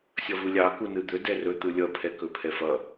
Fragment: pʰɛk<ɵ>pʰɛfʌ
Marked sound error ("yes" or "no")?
no